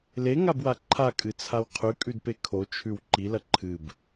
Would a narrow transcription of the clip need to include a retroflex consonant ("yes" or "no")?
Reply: no